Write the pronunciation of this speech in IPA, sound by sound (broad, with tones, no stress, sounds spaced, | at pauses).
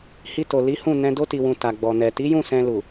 h i˧ t o˨ l i˨˦ h ũ˦˨ n ɛ̃˧ d o˧ t i˨ w ũ˨ t a˨ ɡ͡b ɔ˨ n ɛ˨ t i˨˦ j ũ˦˨ s ɛ̃˧ l u˨